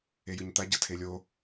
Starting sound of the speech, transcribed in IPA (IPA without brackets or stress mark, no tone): e